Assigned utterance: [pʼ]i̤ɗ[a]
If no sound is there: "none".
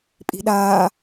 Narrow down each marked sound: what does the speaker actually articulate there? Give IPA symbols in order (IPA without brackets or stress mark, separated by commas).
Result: pʼ, aː